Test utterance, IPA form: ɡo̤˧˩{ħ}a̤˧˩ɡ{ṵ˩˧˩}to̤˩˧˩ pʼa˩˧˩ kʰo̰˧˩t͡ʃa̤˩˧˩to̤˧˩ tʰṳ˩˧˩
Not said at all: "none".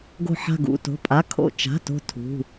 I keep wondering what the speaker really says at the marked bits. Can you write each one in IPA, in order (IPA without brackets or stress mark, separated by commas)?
ħ, ṵ˩˧˩